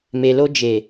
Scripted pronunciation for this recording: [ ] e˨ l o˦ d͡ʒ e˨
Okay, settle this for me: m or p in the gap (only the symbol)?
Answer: m